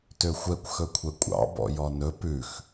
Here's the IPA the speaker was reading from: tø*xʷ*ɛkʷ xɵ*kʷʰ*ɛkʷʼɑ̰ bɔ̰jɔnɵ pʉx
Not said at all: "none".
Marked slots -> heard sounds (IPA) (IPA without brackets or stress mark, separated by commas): xʷ, kʷʰ